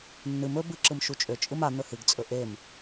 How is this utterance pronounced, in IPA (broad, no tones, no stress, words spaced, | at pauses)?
nːɨm ɵ bɨǁɯm ʃut͡ʃʼø t͡ʃʼɯma n̪ɵhɨɡt͡sʼɵ ʔem